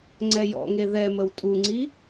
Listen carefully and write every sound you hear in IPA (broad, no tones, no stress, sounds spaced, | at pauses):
ŋ͡ǀ ɛ j ɔ̰ ŋ e ð ɛ m ə w tʼ u ŋ͡ǀ i